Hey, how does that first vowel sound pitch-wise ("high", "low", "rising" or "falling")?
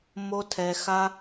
high